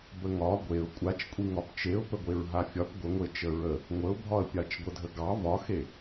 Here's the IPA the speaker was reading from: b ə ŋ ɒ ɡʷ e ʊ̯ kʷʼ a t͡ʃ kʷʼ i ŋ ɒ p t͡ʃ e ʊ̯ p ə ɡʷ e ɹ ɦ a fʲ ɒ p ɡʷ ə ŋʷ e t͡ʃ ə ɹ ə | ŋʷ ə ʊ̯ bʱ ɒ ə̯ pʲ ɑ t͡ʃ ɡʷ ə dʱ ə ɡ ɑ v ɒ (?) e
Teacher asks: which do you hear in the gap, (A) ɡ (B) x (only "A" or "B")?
B